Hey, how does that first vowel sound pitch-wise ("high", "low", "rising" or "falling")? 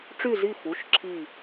falling